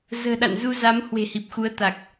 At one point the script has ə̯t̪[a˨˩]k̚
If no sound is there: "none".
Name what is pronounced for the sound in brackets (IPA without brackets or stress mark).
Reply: a˨˩